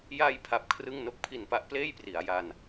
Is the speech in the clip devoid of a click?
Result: yes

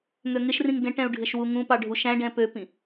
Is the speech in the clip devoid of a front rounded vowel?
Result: no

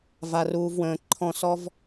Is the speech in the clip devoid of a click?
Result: no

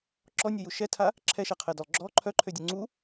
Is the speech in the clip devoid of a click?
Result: no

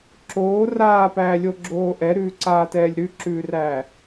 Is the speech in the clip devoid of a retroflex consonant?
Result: yes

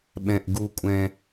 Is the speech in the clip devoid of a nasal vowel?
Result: no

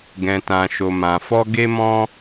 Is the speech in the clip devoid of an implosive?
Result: yes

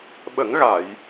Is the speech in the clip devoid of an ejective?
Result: yes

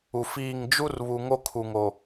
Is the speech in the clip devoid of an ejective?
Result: yes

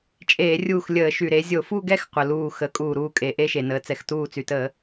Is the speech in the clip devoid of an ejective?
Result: no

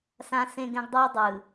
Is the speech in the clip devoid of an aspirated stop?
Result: yes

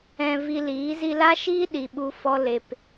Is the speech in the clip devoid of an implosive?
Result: no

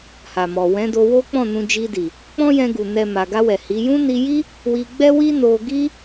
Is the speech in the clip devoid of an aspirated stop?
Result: yes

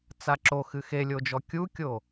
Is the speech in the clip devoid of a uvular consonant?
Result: yes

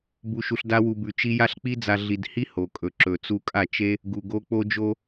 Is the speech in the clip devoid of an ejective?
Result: no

